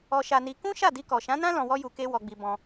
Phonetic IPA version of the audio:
ɔ˧ ʃ a˧ n i˧ k ũ˦ ʃ a˦˨ d i˧ k ɔ˨ ʃ ã˨˦ n ã˦ l ɔ̃˧ w ɔ˦ j u˧ k e˦ w ɔ˧ ɡ͡b i˧ b ɔ̃˧

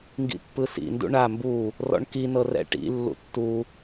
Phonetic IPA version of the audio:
ŋ ɡ ḭ pː ɯ s ḭ n d ṵ ɳ a m b u | r ɔ̰ ɳ k i n ɤ r ɛ̰ ʈ ḭ lː ṵ tː u

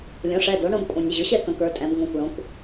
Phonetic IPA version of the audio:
lʲ õ˩˥ ʂ ɛ˩˧˩ d o˩˥ ɳ õ˧ b kʷʼ ə̃˩˧˩ nʲ ə˩˧˩ ʑ ʊ˩˥ ɕ ɛ˥˨ k ə̃˩˧ k ə˞˩˧ tʼ ɛ̃˩˧ b ŋ õ˩˧˩ kʷ ɭ õ˩˧ kʷ

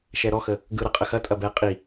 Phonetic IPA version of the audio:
ʃ ɛ ɾ ɔ x ə | ɡ ɯ ɾ ɐ qʼ ə x ɐ tʼ ɐ b ɛ qʼ i

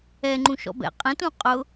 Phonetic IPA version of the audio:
ɛ ŋ͡ǃ ũ ʃ ɔ̰ b ɛ̰ qʼ ɛ̃ t ũ qʼ ʊ

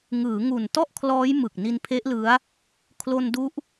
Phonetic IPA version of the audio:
ŋ ɯː˩˦ ŋ u˨˩ n t ɔ˥˩ ʔ kʰ l ɔː˦˥ j m ɯ˨˩ k̚ n i˧ n pʰ e˦˥ ʔ l ɯ˦˥ a̯ | kʰ l o˧ n d u˦˥ ʔ

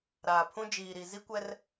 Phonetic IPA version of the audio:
ɾ aː˨ pʰ ũ˦ d͡ʒ iː˨ ɾ i˨ z i˦ kʷ ɛ˦ r

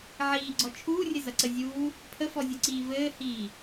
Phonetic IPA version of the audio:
ʕ iː ɡ͡ǀ ɔ t͡ʃʰ uː rʲ ɘ z ɐ ǀ ə zʲ uː | pʰ ə f ɔ zʲ u ǀ iː v ɘː h iː

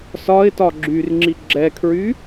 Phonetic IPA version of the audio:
s ɒ ɪ̯ t ɒ ɡ͡ǁ y r ŋ͡ǁ i ɡ͡ǁ ɛ kʰ ɹ y

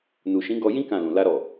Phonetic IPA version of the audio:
n u˨ ʃ ĩ˨˦ ɡ ɔ˧ j ĩ˦ k ã˦˨ l ũ˨ l a˧ ɾ ɔ˨

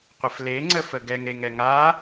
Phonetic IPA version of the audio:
qʷ ə f l e ŋ͡ǀ ə f ə ɡ ɛ ŋ ɾ e ŋ ɛ ŋ a

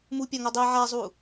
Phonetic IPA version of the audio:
m u pʲ a ŋ o dˤ i ʕ a zˤ u

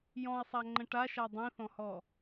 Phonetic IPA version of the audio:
j ɔ̃ i̯ sˤ a ŋ͡ǃ ə̃ ʈ a ʃ a dˤ ĩ θ ɔ̃ h ɔ

